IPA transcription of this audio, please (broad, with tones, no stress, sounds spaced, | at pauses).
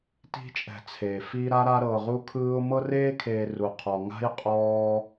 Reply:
t i̤˦ t͡ʃʼ ɛ̤˨ t͡sʰ eː˩ f i˦ ɾ a˥ ɾ a˦ ɾ ɤː˨ ʁ u˦ kʰ ɯː˦ ʊ̯ m ɤ˦ r eː˦ kʰ eː˨ r u˩ qʰ ɔ˩ ŋ a̤˥ j qʼ ɔː˦